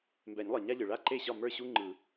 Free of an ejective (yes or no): yes